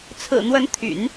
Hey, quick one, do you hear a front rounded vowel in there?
yes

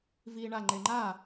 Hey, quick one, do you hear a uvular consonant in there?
no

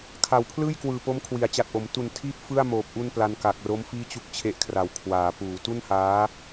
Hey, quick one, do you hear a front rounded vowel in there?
no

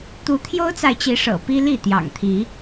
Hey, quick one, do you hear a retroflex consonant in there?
yes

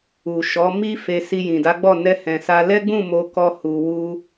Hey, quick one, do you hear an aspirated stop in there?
no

